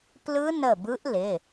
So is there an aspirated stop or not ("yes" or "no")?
no